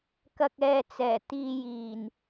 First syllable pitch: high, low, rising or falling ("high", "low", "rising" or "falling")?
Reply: low